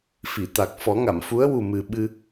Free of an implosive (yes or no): no